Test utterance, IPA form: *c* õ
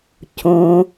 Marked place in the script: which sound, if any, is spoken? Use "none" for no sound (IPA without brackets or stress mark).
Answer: c